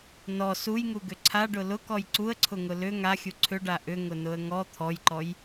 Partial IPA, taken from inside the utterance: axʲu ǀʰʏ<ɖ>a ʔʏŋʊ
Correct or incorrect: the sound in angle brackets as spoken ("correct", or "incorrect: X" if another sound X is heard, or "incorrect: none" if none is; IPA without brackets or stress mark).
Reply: correct